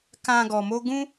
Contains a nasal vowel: yes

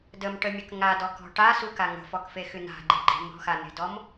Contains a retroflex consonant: yes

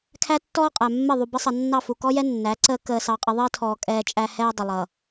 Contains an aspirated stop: yes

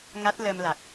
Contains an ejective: no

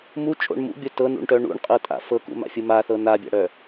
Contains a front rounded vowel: yes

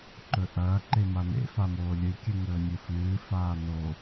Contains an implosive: no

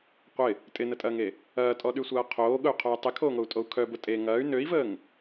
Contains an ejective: yes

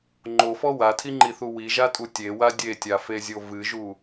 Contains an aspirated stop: yes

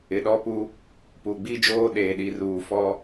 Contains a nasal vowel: no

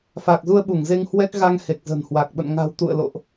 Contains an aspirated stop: no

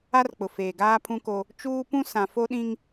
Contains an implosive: yes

